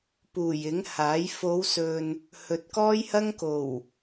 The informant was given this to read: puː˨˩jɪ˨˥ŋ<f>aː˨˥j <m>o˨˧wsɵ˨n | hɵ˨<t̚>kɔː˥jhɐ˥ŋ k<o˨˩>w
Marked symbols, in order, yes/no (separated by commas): no, no, yes, yes